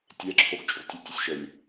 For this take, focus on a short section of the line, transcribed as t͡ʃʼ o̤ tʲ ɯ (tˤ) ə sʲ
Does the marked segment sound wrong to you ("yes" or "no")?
yes